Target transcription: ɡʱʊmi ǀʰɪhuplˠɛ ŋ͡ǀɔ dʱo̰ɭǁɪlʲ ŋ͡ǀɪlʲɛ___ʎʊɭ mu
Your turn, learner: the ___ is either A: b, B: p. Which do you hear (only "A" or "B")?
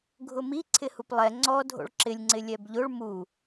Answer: A